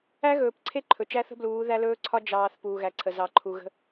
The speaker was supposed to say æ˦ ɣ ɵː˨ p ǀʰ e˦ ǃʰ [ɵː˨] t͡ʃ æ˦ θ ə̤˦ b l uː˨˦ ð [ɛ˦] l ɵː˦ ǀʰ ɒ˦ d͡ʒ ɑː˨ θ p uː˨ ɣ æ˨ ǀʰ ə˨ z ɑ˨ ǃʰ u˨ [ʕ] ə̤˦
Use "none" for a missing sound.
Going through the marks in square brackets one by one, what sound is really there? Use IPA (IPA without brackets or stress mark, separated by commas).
ɵ˨, æ˦, ɣ